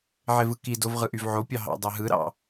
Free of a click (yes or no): yes